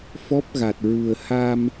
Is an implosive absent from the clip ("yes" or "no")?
yes